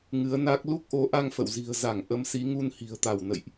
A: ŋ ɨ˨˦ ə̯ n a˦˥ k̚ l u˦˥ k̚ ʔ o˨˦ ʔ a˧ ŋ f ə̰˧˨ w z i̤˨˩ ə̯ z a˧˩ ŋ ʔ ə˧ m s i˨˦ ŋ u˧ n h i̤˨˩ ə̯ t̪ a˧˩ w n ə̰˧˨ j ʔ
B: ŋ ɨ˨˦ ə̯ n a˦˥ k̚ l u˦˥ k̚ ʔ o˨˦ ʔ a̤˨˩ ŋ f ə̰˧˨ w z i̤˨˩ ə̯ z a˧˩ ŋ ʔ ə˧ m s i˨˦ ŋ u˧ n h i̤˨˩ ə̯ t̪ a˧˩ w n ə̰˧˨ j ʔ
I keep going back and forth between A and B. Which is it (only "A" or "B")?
A